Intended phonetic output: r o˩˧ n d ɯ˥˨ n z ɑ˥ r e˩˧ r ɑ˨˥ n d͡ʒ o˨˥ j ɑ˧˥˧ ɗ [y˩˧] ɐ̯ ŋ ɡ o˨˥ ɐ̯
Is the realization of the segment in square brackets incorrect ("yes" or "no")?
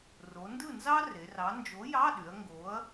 no